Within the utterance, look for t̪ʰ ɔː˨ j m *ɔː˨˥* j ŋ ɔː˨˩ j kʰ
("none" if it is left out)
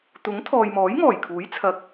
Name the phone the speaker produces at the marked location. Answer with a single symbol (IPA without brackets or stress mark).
ɔː˨˥